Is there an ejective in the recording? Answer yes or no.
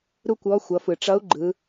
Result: no